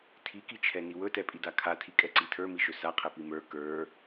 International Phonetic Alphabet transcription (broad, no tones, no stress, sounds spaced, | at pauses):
tʰ i k i t͡ʃʰ ɛ n i w ɵ t ɛ pʼ i d a kʰ a tʰ i kʼ ɛ ǀ i tʰ ə˞ m i ʃ ɵ s a qʰ ɛ p i m ə˞ k ə˞